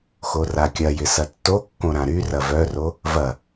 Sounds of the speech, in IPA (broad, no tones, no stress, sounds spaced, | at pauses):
x o r a kʲ ɐ j ɪ s ɐ tː o kː õ ɾ ã ɾ y r ɐ v œ r o | v ɐ